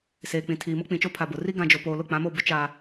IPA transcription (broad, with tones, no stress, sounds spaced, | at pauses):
s eː˨ k͡p ĩ˨ tʰ iː˨ m ʊ˦ k͡p ĩ˨ t͡ʃ o˦ pʰ a˨ b ʊ˨ r i˦ ɡ ã˨ d͡ʒ o˨ p oː˨ l ʊ˦˨ k͡p ã˨˦ m o˦˨ b ʊ˦ t͡ʃ a˦